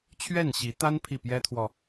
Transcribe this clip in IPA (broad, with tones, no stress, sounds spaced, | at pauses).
t͡ɕʰ ɥ ɛ˥˩ n ɕ i˧˥ t̪ a˥ n pʰ i˥˩ p j ɛ˥ t̪ʰ w ɔ˨